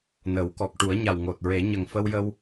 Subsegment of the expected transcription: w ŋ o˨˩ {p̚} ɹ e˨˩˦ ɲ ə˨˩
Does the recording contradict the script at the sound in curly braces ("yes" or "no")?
yes